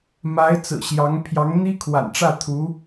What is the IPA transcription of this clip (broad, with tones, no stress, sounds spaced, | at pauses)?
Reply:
m a˧˥ ɪ̯ t͡s ɹ̩˨˩ ɕ j ɑ˧˥ ŋ pʰ j ɑ˧˥ ŋ n̪ i˥ kʰ w a̰˨˩ n ʈ͡ʂ ä˥˩ t̪ʰ u˧˥